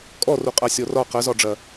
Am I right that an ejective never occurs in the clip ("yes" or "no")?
no